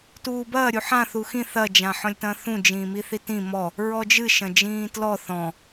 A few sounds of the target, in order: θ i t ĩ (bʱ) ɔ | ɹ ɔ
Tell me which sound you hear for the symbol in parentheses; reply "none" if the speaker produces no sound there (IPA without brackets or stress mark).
m